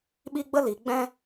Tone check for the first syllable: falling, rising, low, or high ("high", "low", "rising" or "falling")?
high